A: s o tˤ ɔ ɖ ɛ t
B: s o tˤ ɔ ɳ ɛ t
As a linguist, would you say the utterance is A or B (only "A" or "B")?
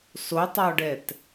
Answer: A